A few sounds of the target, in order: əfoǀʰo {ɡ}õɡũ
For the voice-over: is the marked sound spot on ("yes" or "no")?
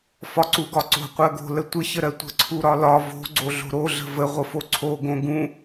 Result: yes